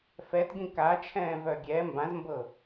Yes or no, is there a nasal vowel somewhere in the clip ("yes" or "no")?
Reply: yes